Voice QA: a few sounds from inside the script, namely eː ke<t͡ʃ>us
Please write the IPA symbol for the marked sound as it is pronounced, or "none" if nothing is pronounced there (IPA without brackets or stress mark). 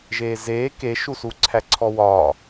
ʃ